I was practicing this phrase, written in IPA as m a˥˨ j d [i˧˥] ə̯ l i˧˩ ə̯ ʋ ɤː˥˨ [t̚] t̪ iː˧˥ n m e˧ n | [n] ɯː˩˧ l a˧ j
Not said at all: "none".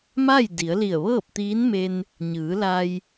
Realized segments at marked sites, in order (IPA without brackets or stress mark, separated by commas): i˩˧, p̚, ɲ